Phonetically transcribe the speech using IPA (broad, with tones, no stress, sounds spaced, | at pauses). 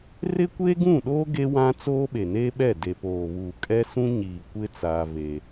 r ɪ˦ kʷ eː˦ ɡ ũ˦˨ ɗ oː˦ ɡ e˦ w ã˦ t͡s oː˦ ɓ e˨ n eː˦ ɓ ɛ˦˨ d e˨ p oː˨ β uː˨ kʼ ɛ˦ s ũ˦ ɲ iː˨ kʷ ɪ˦ t͡s aː˦ v eː˦